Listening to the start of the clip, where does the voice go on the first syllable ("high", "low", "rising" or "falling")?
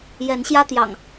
rising